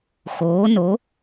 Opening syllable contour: rising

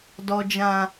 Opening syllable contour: low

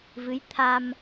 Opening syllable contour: rising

